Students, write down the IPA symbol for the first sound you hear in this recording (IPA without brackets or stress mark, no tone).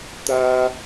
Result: t̪